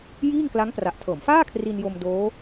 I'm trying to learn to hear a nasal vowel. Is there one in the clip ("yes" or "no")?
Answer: no